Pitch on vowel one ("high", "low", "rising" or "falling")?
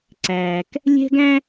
low